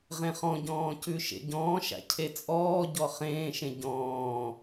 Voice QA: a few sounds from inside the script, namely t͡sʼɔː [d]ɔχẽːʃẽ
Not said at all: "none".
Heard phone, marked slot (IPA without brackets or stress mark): ɟ